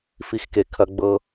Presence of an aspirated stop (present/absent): present